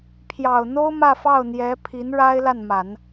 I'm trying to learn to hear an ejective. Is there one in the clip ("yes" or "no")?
no